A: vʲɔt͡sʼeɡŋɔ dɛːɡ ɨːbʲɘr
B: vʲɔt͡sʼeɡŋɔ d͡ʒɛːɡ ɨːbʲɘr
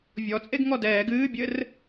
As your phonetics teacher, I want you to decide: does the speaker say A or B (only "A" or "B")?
A